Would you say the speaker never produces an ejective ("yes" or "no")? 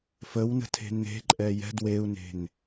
no